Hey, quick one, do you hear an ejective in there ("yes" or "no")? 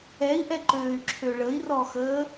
no